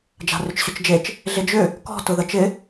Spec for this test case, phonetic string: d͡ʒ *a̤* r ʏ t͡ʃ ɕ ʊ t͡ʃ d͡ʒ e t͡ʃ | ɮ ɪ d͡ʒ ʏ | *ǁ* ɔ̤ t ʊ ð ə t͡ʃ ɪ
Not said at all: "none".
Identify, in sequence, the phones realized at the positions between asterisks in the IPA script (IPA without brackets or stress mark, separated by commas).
a̤, k